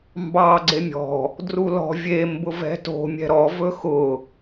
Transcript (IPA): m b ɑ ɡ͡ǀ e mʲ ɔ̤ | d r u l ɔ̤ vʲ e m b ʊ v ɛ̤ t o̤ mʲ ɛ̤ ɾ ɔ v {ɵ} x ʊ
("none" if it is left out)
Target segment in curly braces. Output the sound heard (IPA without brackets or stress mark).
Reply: ɵ